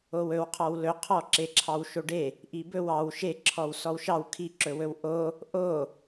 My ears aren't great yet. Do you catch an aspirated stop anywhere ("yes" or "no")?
yes